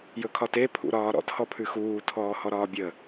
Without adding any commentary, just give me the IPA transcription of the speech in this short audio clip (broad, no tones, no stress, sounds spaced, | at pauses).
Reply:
j ɵ kʰ ɒ t e pʰ ṵ ɾ ɒː ɾ ɔ̰ t h ɔ pʰ ʉ x uː tʰ ɔː h ɔ ɾ ɒː bʲ ə